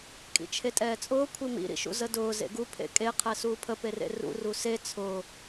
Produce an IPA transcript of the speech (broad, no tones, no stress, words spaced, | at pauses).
kʼḭt͡ʃʰetʼɛːt͡sʼʊː kʷʰimḭɾḭʃṵ zədʊː zḛɡupʰḛ kʼeqʰɛ suːpʰəperḛ rṵru se t͡sʰʊː